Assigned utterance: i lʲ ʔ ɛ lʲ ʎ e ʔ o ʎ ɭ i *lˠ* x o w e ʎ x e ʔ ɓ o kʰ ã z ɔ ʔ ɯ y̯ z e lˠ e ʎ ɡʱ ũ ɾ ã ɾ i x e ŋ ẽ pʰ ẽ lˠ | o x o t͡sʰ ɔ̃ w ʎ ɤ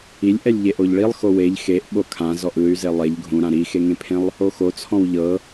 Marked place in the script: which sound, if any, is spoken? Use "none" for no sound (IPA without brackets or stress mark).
lˠ